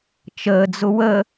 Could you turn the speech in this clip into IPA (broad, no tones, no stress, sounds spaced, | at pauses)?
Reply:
t͡ʃ əː d͡z ʊ w ə